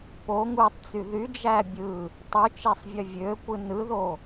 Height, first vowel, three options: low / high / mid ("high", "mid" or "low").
mid